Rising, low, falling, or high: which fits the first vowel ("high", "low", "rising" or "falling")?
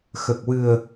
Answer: low